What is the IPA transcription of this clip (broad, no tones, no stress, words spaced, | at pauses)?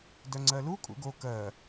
dœŋ͡ǀɜlu kʼṵɡo kɜ